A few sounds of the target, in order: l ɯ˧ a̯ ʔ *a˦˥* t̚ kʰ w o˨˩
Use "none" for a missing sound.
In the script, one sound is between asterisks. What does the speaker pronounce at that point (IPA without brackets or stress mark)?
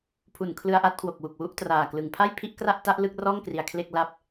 a˦˥